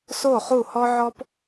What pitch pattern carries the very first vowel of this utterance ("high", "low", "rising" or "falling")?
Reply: falling